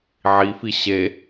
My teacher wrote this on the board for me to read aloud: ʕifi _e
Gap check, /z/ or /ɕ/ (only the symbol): ɕ